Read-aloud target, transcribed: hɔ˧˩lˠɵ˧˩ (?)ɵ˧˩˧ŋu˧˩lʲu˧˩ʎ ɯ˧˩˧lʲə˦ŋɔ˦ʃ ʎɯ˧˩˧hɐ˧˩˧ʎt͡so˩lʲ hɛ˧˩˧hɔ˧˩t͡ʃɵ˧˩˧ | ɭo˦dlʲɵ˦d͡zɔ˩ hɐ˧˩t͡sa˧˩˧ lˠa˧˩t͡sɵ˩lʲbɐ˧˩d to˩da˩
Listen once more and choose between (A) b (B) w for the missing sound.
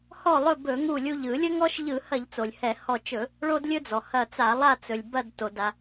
A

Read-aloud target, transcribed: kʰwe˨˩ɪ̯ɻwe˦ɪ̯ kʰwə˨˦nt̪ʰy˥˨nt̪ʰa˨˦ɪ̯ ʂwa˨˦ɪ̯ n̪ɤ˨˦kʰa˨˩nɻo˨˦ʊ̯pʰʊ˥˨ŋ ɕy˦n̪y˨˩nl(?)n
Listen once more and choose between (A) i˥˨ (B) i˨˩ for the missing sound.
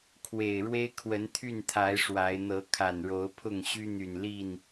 A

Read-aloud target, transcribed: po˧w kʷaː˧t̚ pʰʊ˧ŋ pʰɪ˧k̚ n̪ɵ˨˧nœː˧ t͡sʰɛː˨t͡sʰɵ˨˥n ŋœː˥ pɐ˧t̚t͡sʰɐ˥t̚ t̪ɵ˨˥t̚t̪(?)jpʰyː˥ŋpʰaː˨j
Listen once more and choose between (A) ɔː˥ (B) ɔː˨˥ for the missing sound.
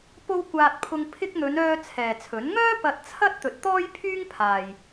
A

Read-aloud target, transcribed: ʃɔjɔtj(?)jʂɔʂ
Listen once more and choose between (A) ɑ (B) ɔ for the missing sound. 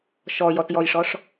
B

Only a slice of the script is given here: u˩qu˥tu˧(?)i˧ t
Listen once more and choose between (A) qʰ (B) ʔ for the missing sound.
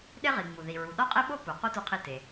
A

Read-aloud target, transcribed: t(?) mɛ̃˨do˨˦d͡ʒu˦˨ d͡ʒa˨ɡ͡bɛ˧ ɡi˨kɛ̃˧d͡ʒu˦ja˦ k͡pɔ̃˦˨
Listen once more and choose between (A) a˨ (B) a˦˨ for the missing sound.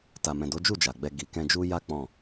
A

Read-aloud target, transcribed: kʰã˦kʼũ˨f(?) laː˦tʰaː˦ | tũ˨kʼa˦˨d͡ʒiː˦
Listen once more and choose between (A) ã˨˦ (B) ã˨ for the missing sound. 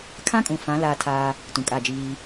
A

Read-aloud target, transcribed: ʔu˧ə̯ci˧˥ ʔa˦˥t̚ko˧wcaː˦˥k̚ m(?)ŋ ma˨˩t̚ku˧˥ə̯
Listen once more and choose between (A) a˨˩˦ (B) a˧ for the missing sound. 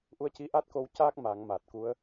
A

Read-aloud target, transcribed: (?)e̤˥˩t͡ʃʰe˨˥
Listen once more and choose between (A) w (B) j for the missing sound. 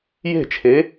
B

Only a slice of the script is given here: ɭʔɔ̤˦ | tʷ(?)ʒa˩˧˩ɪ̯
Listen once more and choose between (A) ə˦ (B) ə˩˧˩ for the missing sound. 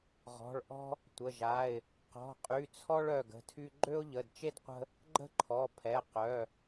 B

